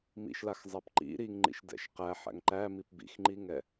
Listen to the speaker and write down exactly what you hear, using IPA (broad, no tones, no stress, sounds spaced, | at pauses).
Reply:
m ḭ ʃ l a x zˤ æ p ǃ ḭ ɾ i ŋ ŋ͡ǃ ḭ ʃ d ɛ̰ ʃ q æ ħ æ̰ ŋ ǃ æ m i p b ḭ x ŋ͡ǃ i ŋ ɛ